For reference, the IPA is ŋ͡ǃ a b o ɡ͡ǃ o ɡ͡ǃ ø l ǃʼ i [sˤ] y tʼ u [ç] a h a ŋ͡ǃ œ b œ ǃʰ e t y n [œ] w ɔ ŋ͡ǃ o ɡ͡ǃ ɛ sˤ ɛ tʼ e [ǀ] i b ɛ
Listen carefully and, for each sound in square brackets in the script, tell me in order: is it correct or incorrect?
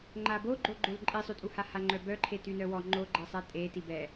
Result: correct, incorrect: h, correct, incorrect: t

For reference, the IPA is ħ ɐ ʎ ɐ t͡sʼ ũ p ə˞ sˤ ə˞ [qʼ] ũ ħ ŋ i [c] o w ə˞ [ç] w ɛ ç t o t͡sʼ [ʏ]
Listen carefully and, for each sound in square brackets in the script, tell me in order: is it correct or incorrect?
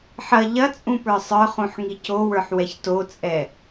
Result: incorrect: χ, correct, incorrect: ħ, incorrect: ɛ

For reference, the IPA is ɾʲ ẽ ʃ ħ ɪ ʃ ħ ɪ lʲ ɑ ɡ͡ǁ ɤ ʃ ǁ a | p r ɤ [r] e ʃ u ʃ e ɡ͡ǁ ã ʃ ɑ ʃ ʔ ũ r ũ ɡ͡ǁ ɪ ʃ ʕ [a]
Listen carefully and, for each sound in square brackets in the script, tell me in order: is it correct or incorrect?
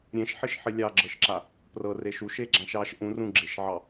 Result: correct, incorrect: ɑ

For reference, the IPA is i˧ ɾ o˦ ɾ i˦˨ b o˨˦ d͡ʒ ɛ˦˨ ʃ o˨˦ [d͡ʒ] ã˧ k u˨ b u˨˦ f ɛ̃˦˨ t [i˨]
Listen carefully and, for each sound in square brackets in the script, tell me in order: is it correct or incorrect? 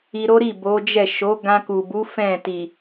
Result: incorrect: ɡ, correct

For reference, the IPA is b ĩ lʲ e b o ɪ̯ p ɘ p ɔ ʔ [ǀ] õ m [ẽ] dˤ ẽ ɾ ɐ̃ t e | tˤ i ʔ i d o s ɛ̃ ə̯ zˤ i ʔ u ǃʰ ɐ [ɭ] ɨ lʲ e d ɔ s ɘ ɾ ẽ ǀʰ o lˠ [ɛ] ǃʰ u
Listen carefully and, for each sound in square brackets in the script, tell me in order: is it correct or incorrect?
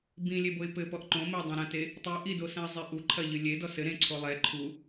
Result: incorrect: ǃ, incorrect: e, incorrect: ʎ, correct

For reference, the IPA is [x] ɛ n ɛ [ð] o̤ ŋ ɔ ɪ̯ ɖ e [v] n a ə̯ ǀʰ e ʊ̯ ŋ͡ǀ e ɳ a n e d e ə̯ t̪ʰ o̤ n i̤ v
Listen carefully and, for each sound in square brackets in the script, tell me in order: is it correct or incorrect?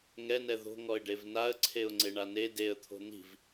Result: incorrect: ŋ, correct, correct

